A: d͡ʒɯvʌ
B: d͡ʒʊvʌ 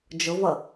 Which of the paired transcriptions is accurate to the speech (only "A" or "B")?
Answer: B